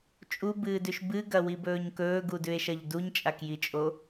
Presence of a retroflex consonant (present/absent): absent